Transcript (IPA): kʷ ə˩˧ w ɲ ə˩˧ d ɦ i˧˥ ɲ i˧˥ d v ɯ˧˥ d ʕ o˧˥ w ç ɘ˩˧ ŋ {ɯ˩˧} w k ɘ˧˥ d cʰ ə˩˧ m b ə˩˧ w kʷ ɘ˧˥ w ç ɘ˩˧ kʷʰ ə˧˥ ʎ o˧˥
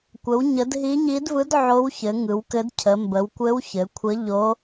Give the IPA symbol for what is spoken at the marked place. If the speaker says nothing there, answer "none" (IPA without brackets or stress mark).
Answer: ɯ˩˧